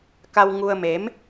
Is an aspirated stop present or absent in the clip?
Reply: absent